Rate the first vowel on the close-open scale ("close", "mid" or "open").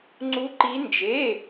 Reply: close